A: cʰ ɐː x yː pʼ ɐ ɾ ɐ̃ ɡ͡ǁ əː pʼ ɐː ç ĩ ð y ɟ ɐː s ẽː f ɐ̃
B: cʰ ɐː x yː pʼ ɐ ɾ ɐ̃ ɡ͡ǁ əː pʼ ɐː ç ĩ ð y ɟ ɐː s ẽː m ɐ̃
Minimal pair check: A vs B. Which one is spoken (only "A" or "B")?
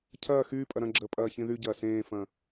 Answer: A